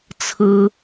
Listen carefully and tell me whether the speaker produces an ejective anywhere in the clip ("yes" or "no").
no